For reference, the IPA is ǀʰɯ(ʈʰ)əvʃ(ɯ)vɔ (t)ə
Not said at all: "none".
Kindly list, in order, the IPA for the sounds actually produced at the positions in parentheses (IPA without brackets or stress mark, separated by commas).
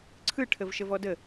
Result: ʈʰ, ə, d